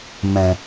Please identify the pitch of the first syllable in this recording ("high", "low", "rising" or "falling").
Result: low